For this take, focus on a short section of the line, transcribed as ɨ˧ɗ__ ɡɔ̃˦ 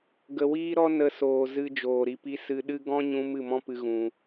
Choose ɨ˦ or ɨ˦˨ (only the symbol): ɨ˦